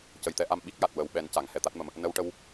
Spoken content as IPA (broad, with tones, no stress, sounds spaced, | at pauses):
c ə˨˩ j t̪ ɛ˧ ʔ a˧ m ɓ i˦˥ k̚ j a˨˩ t̚ w ə˨˩˦ w ɓ ɛ˨˩˦ n c a˨˩˨ ŋ h ɛ˨˩ t̪ a˦˥ t̚ m ə˨˩ m | n ə˧ w ʈ ə˧ w